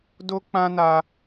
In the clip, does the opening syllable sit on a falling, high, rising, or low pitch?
high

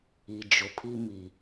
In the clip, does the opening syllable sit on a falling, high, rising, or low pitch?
low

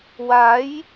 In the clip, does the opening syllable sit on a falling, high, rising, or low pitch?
rising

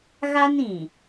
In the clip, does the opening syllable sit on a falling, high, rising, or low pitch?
high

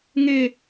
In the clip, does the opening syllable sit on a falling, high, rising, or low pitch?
high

